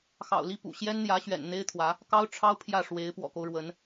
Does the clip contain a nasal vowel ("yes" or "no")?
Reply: no